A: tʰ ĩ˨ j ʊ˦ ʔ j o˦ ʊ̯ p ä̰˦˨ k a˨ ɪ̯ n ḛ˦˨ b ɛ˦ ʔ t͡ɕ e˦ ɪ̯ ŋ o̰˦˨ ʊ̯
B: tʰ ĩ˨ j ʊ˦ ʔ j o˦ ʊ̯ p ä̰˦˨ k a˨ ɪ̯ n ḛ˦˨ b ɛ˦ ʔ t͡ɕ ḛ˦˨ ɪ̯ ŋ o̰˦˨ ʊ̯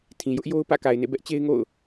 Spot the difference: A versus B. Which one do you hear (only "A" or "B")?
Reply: A